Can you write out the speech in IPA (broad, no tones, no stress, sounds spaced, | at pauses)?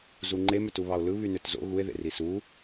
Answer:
z u ŋ͡ǃ e m ø t u β ɑ o̯ l ɯ β y n ø t z o̰ ɣ u e̯ ð ḛ r i s u